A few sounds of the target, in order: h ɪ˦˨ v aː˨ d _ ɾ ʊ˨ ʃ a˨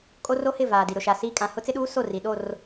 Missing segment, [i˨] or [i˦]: i˨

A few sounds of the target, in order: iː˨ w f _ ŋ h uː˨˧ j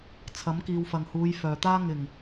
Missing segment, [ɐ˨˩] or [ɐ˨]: ɐ˨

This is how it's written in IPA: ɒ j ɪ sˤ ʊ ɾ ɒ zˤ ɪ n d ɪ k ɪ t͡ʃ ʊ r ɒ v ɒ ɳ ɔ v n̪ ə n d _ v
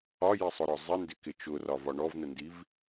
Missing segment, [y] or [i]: i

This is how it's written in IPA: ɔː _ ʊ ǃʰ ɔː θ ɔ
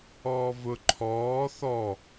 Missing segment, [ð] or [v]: v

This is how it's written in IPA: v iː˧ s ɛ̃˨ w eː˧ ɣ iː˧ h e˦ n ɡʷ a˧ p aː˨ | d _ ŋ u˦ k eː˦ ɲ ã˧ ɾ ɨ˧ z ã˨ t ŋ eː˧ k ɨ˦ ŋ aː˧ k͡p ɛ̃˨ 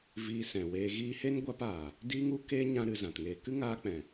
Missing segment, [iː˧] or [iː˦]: iː˦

